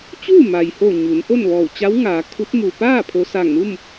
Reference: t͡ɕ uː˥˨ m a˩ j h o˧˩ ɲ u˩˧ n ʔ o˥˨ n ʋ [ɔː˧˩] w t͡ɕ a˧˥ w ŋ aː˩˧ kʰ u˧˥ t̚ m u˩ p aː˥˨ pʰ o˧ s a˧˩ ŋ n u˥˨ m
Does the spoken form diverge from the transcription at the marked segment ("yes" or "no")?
no